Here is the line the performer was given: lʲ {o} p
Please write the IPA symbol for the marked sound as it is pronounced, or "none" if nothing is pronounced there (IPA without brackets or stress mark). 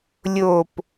o